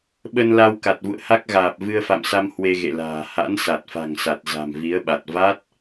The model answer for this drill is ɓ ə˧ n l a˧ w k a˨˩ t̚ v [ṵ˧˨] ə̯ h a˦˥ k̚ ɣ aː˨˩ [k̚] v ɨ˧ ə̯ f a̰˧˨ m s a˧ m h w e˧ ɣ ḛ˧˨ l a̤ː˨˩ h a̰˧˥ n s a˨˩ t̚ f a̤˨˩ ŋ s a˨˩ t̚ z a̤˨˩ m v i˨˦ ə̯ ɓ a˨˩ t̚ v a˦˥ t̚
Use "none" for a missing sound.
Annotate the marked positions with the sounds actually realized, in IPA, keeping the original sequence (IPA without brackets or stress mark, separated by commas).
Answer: ṵ˧˨, p̚